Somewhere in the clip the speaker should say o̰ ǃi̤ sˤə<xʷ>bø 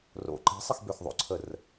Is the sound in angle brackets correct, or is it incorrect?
incorrect